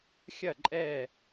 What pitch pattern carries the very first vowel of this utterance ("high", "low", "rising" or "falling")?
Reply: falling